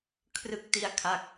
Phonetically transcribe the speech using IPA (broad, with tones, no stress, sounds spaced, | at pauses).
kʰ r ɯ˥˩ k̚ t i˥˩ a̯ kʰ a˥˩ k̚